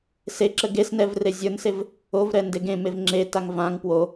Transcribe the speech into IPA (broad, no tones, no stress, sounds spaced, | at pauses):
s e ǁ ə ɡ e s n ɛ v r e zʲ ə˞ n s e v | o v ɾ ɛ n d e ɡ ẽ m e v ŋ͡ǁ e t a ŋ v ã ŋ p w o